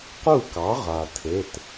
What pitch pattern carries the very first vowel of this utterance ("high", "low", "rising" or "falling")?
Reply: falling